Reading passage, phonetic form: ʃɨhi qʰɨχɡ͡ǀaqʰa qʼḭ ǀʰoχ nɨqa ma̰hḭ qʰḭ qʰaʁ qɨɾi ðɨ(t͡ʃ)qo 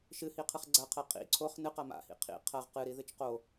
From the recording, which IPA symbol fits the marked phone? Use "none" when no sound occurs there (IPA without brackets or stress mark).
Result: t͡ʃ